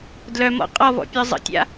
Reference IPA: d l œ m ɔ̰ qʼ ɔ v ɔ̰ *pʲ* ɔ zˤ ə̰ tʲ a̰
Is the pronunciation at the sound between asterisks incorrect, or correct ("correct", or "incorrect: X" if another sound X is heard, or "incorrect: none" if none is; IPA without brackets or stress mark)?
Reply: correct